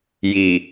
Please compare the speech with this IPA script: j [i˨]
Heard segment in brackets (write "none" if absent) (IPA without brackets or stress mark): i˨